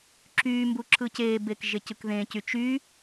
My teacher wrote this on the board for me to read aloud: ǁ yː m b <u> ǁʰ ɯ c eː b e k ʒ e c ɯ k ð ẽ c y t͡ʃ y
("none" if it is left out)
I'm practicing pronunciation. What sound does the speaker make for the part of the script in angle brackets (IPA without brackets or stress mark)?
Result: u